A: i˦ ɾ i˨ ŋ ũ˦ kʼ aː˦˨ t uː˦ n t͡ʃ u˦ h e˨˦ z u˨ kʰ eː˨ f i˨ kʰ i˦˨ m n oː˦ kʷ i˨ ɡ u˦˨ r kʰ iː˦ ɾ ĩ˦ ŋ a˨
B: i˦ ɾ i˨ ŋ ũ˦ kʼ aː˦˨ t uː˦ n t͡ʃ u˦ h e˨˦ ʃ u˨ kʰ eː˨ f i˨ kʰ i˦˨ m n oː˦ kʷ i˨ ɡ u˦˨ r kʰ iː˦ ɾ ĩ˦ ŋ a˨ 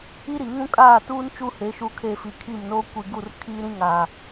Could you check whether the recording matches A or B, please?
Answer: B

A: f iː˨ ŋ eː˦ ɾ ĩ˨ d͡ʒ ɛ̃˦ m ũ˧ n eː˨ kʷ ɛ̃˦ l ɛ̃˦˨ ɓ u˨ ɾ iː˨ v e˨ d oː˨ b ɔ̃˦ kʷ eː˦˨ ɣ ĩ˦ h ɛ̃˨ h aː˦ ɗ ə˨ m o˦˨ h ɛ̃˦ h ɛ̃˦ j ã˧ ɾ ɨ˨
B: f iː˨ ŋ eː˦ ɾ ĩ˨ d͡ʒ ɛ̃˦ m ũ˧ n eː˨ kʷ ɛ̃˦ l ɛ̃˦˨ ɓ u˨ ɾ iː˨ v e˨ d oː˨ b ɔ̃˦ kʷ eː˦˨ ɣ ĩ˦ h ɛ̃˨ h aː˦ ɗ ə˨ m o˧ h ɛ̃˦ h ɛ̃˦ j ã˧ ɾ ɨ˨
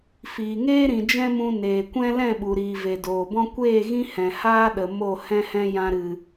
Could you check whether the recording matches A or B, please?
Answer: A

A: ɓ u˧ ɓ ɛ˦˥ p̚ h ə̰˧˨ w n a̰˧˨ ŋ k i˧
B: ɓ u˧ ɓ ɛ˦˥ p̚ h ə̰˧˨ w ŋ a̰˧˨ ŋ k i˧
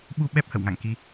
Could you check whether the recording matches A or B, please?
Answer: B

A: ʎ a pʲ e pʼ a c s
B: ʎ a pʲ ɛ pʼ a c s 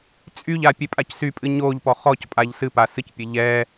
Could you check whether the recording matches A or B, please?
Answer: A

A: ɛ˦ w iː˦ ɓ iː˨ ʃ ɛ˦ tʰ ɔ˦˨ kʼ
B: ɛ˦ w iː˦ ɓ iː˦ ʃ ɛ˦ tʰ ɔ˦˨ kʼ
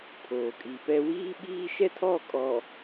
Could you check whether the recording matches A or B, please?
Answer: B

